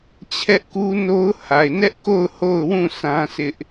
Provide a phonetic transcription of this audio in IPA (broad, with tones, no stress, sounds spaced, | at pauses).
t͡ɕʰ ɛ˦ ʔ k u˦ n o˦ ʊ̯ h a˨ ɪ̯ n ɛ˦ ʔ k o˦˨ ʊ̯ h o˦˨ ʊ̯ w ũ˦˨ s ã˦ s ɪ˦ ʔ